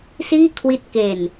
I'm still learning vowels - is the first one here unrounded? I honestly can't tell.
yes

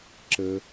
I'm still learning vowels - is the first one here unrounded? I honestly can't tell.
yes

